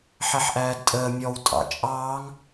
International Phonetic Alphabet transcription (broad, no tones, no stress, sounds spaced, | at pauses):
ħ ɛ ħ ʔ æː d tʼ əː mʲ ɔ w tʼ ɑ̰ t͡ʃʼ ɑː ŋ